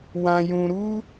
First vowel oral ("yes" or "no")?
no